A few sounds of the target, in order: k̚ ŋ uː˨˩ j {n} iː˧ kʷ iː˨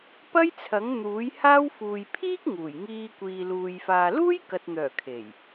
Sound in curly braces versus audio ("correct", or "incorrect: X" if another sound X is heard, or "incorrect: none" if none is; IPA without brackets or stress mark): incorrect: ŋ